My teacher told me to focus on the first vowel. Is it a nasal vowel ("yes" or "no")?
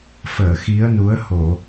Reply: no